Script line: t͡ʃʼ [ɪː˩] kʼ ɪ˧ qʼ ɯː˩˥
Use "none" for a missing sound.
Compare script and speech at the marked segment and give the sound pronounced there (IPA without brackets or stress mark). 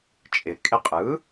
ɪː˩